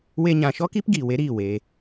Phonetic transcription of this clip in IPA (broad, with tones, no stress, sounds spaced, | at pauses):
w e˧ ɲ ã˨ ʃ ɔ˦ k i˦ p ɡ iː˨ w e˨˦ ɾ iː˦˨ w e˧